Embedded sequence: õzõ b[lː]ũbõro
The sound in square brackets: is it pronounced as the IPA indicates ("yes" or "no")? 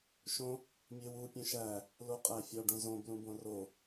no